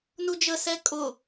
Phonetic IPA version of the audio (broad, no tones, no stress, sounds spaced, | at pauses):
n u d͡ʒ ə s ɛ kʼ ʊ